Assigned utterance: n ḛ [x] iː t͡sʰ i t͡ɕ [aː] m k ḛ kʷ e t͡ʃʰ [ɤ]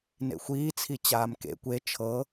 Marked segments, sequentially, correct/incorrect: incorrect, correct, correct

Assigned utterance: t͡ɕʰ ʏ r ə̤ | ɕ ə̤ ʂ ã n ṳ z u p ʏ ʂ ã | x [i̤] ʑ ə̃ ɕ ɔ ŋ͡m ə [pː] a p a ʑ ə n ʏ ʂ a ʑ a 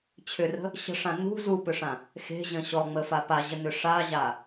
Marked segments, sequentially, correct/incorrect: incorrect, incorrect

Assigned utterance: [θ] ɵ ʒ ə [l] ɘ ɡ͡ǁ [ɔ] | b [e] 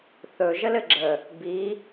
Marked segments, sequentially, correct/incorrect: correct, correct, incorrect, incorrect

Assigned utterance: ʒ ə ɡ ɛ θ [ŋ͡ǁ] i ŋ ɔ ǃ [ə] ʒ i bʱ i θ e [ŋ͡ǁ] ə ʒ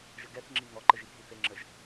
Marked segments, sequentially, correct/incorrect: correct, correct, correct

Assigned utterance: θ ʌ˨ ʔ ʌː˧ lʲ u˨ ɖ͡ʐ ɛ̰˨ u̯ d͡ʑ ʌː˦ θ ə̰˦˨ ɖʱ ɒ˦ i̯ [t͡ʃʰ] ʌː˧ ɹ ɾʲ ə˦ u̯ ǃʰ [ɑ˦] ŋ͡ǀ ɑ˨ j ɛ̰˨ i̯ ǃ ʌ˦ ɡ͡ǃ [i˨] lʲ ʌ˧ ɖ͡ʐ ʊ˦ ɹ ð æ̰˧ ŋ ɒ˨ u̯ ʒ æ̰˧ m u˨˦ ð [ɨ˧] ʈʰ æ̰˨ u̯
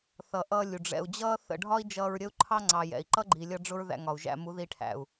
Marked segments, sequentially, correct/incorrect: incorrect, correct, correct, incorrect

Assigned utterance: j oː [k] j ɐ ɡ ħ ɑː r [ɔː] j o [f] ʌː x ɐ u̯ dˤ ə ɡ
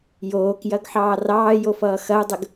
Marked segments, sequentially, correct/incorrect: correct, incorrect, correct

